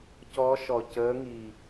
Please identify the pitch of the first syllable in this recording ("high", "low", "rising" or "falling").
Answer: rising